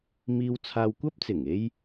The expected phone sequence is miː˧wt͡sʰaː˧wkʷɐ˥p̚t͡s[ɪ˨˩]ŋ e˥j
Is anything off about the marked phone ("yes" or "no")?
no